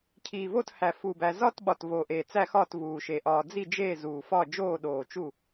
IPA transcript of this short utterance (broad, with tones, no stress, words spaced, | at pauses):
cʰiː˨˩vo˥˨thæ˨˩ fu˨˩bæ˨˩ zɒː˥˨tɓɒ˨˩tvoː˨˩ʔeː˨˩ t͡sæ˥˨xɒː˥˨tvuː˨˩ʃe˨˩ ʔɒː˨˩d͡zi˥˨ d͡ʒeː˥˨zuː˨˩fɒ˥˨ d͡ʒoː˥˨ɗoː˨˩t͡ʃu˥˨